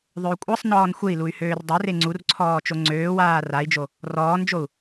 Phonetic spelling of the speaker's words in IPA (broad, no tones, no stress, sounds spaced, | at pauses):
ðˤ ø u̯ kʷʼ ɜ sˤ n ɔː n xʷ e i̯ l u y̯ h øː r dˤ ø r e ŋ͡ǀ u r ǀʰ ɔː t͡ʃ o ŋ͡ǀ øː w aː r a i̯ d͡ʒ o | r ɔː n d͡ʒ o u̯